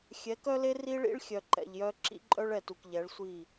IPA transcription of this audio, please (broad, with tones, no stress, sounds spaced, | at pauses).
xʲ ɛ˨˦ k œ˦ l e˦ r i˦ ɭ ḭ˦ ɭ xʲ œ˨ ǃ ɛ̰˨ ʎ j œ˦ ǁ ḭ˦ ǃʼ œ˦ ɭ ɛ˨ t u˨ k ʎ ɛ˨˦ ɭ sʷ i˦˨